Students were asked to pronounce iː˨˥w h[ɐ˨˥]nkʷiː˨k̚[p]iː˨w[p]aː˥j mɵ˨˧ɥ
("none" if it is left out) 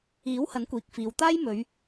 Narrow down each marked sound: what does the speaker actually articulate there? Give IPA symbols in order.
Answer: ɐ˨˥, f, t̪

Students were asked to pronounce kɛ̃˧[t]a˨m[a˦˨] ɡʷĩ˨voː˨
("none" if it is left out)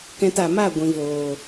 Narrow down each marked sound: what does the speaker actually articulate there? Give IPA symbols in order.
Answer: t, a˦˨

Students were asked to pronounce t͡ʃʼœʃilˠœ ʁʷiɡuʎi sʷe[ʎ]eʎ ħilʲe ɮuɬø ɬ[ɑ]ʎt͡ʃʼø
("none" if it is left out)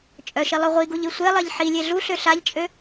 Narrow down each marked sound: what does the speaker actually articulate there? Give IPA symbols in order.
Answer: lˠ, a

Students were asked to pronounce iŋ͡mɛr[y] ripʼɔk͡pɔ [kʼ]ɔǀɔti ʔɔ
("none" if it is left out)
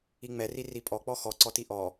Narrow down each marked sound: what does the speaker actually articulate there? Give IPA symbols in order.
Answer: i, x

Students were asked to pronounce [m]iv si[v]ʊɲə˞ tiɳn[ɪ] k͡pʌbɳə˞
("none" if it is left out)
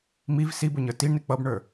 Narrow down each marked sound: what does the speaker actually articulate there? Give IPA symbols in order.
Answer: m, b, ɪ

